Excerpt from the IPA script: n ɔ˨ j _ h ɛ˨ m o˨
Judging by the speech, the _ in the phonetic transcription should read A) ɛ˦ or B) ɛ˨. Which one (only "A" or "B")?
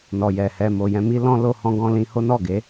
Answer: B